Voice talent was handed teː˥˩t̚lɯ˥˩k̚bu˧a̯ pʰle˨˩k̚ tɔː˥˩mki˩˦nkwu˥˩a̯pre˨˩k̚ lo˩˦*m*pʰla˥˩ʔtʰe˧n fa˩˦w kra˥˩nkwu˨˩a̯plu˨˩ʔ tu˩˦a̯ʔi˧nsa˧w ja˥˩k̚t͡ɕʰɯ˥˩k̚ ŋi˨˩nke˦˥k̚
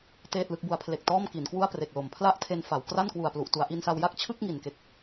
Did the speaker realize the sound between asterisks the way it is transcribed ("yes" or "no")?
yes